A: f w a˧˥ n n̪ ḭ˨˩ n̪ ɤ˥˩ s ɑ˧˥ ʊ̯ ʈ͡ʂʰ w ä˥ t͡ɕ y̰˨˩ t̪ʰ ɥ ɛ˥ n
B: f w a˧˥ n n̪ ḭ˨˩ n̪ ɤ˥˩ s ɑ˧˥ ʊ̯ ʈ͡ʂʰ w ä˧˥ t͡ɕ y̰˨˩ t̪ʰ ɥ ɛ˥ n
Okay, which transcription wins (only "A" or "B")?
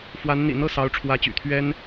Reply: B